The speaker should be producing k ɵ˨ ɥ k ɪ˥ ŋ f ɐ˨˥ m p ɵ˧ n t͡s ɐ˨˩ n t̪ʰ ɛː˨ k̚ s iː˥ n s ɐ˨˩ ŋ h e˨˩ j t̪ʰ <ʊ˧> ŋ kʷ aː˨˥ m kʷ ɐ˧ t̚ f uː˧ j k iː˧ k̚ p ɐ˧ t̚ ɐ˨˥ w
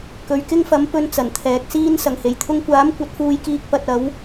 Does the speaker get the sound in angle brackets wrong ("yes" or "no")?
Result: no